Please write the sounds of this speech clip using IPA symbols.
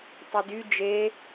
tˤ ɯ d y d͡ʒ e

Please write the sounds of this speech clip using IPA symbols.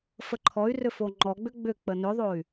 f ə ǃʰ ɔ y̯ r ʏ f o ŋ͡ǃ ɔ ɡ͡b ʏ ɡ͡b ʏ k͡p ə n ʏ ðˤ o y̯

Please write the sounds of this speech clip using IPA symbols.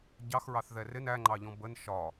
ɟ ɑ x ɹ ɑ θ ð ɛ r ɪ n æ ŋ͡ǃ ɑ ʎ ɔ̃ b ə n ʃ ɒ

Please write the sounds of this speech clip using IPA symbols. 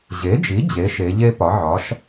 ʑ e˩˥ d͡ʒ i˩˥ d͡ʑ e˩˥ ʃ e˩˧ ʎ e˥ p ɒ˩˥ ʕ ɒ˩˥ ʃ

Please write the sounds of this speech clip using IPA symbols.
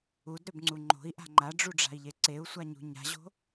u d ɾ ø b ŋ͡ǀ u ŋ͡ǃ o̤ i̯ ʔ a̤ ŋ͡ǃ a ɖ͡ʐ u ɖ͡ʐ a̤ i̯ ʎ e ǀ e u̯ sʷ a ɲ ṳ ɲ a̤ ʑ o̤

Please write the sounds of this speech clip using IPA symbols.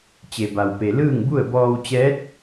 t͡ɕ e˩ b a˩ w p e˩ l ɯː˥˨ ŋ b u˥˨ ə̯ b ɔː˧ w t͡ɕ ɛː˧˥ t̚

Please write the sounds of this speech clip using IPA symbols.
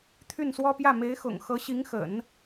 t̪ʰ y˥˩ n s w ɔ˥ p j ä˥˩ m e˧˥ ɪ̯ x ʊ̰˨˩ ŋ x ɤ˧˥ ɕ i˧˥ ŋ x ə̰˨˩˦ n

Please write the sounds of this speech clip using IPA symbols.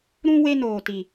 ɾ ũ˦ w e˦ n oː˨ t i˨

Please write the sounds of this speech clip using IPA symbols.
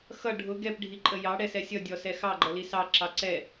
x ʌ ɖʱ ʊ ɡ ɛ p ɖʱ i ǃʼ ə j ɑ ɽ ɛ s ɛ sʲ ʌ dʲ ɔ s ɛ x ɑ ɡ͡ǃ ʌ l i s ɑ ǁ ɑ ǀ ɛ

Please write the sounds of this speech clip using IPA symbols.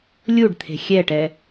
lʲ u ɖ t̪ʰ e̤ xʲ ɛ ʈ ɛ

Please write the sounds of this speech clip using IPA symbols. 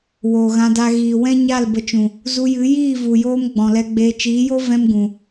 w oː˨ ɣ ã˧ d a˧ ɣ iː˨ w ɛ̃˦ ɲ a˦˨ l b ə˧ t͡ʃ ũ˨ | z u˧ j ɨ˨˦ j iː˦˨ v u˨ j oː˦ m ɡ͡b ɔ̃˨ l ɛ˧ ɡ͡b eː˧ t͡ʃ iː˨˦ j o˦ v ɛ̃˦ m ɡ ũ˨

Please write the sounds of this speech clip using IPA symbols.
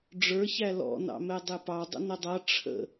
ɖ͡ʐ ə˞ ç æ l ɔ̰ n ɑ̰ m ɛ dˤ ɪ p ɑ dˤ ə̰ n ə dˤ ʌ ʈ͡ʂʰ ə̰

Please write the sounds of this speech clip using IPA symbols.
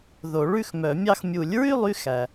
ð o˨˩˦ ɭ ʉ˥˨ x m œ˨˩˦ mʲ ɑ˥˨ x mʲ u˨˩˦ lʲ ɹ y˥˨ lˠ y˥ x æ˩

